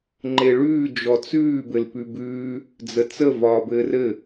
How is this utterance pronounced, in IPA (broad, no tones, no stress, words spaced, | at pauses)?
ŋ͡ǃeɭʉː d͡ʒɔt͡sʉː bɘlpʉbʉː | d͡zət͡sə vɒːbɘːrɘ